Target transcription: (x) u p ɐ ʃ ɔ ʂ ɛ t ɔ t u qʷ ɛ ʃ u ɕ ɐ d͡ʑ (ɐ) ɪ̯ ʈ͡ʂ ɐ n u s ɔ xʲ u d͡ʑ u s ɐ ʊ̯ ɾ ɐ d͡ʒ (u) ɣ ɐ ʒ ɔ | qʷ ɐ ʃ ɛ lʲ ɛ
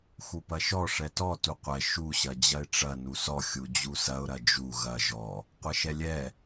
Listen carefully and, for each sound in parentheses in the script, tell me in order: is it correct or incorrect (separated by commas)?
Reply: correct, correct, correct